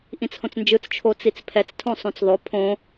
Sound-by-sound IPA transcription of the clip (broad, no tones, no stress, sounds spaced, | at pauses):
ʔ ĩ t͡s h õ t͡s n d͡ʒ ɯ t͡s t͡ʃʰ o t͡s i t͡s pʰ ɛ t͡s tʰ õ sˤ õ t͡s ðˤ o pʰ õ